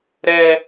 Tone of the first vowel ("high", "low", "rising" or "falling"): high